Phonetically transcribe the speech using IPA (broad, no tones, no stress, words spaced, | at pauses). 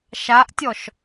ʃaʔtʲɔʃ